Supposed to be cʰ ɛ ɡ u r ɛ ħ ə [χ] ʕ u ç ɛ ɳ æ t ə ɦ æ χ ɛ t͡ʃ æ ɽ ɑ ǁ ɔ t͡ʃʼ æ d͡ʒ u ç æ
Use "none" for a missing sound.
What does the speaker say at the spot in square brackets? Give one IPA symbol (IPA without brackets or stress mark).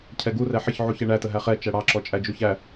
ç